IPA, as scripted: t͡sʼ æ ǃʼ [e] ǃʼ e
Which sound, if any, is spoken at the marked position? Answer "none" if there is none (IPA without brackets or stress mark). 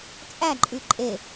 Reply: y